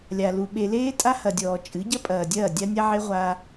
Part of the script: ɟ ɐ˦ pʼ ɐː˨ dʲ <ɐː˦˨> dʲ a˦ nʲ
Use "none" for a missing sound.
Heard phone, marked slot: ɐː˦˨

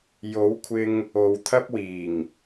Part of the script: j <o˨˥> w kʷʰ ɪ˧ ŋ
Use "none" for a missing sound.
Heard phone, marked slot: o˨˥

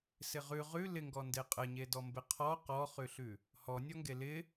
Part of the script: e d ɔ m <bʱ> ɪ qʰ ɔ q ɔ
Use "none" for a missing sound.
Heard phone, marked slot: b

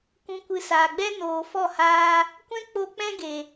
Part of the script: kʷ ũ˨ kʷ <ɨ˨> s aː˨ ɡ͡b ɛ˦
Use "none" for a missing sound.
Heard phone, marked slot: ɨ˨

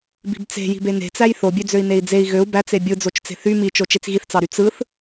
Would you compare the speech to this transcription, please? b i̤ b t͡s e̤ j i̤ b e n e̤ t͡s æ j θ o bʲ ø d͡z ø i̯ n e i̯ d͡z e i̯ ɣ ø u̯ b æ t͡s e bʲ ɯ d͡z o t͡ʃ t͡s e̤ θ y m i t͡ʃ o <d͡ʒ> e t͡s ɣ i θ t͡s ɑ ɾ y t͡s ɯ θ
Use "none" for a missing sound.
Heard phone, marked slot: t͡ʃ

